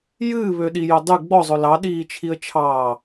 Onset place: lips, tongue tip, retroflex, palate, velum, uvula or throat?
palate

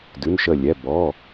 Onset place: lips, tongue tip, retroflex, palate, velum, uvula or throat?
tongue tip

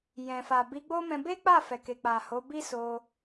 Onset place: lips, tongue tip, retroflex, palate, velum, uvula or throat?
palate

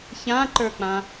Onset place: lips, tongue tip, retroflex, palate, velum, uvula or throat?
palate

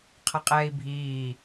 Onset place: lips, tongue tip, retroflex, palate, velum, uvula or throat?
uvula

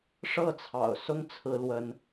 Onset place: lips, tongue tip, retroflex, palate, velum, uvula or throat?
retroflex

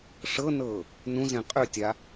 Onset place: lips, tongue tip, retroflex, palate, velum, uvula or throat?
retroflex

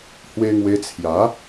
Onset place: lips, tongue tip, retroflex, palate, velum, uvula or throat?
throat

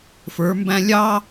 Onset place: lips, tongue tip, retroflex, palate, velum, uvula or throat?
lips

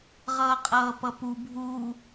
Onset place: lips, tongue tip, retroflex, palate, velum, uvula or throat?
uvula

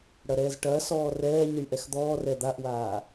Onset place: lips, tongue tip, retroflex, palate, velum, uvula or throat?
retroflex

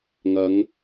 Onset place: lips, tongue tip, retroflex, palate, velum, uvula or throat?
velum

